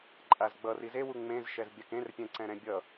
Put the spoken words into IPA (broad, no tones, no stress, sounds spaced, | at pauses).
ǃʼ a z ɡ͡b ʌ r i z e w u ŋ͡m ẽ z ʃ ɛ z bʲ a k ẽ r pʲ ɛ̃ ǀ ɛ̃ ɾ ɛ̃ bʲ ʌ